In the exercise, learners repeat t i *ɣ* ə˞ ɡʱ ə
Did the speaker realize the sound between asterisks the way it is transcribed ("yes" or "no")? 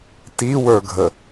no